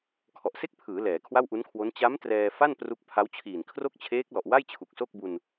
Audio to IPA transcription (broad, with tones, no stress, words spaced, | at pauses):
kʰɔ˨˩ʔse˥˩k̚pʰɯː˩˦ lɛː˩˦kʰwa˥˩wʔu˦˥nkʰwo˦˥n t͡ɕa˦˥m trɛː˧fa˥˩n pru˦˥k̚pʰa˦˥wt͡ɕʰiː˨˩n kʰro˥˩k̚t͡ɕʰeː˦˥k̚ lɔ˨˩ʔwa˥˩j t͡ɕʰu˨˩k̚so˥˩k̚bu˧n